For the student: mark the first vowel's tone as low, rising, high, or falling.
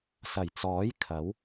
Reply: low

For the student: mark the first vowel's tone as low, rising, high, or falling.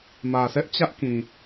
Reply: low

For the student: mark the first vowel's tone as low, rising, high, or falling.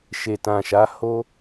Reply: low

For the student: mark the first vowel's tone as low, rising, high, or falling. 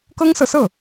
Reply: high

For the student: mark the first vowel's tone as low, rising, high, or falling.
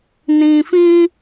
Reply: low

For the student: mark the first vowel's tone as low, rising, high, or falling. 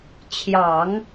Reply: low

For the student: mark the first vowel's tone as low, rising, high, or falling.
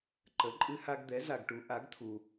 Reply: rising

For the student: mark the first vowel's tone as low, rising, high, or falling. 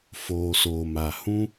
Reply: low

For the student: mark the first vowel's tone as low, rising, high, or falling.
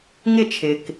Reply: falling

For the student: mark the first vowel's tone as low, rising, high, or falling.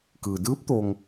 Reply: low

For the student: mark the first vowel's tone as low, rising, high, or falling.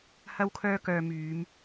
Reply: high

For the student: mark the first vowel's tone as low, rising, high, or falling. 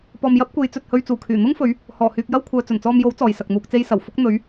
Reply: low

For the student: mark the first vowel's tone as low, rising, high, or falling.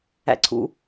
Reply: falling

